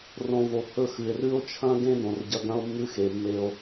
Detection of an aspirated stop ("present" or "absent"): present